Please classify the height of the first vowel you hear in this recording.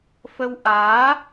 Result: mid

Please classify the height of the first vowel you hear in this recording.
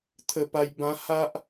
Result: mid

